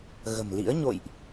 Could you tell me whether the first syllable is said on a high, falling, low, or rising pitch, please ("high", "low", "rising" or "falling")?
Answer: low